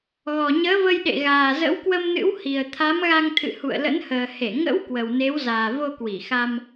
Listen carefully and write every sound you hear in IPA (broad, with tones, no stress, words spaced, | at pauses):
ɣɔ˨˩ɲəː˨˦və˧jɗḛ˧˨ ɣaː˨˩zə̰˧˥w kwə˧mnɨ̰˧˥w hi˨˩ə̯ t̪ʰa˨˦mɣa˧ŋt̪ʰɨ̰˧˨ hṵ˧˨ə̯lə̰˧˥nhəː˨˩ he˧˩ŋə̰˧˥w kwə˨˩wne˨˦wzaː˨˩ vo˧kwi˧˩xa˧m